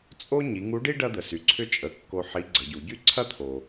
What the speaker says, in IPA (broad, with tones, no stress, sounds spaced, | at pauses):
t͡sʼ o˥ ɲ i˩˧ ŋ u˧˥ ɖ i˥ ɖ ɐ˥ d̪ ə˩ s y˩˧ ǀʰ ʏ˥ t͡ʃʼ ə˩˧ kː o˧ ħ i˧˥ ɡ͡ǀ ə˩˧ ɟ u˩˧ ɟ y˥ ǀʰ ɐ˥ t̪ʰ o˩